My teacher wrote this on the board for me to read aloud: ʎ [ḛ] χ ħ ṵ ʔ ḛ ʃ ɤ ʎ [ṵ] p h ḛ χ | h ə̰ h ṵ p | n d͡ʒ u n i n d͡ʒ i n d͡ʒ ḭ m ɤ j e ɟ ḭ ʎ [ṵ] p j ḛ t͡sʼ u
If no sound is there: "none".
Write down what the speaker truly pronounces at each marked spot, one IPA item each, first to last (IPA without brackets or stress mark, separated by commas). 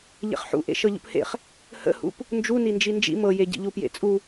ḛ, ṵ, u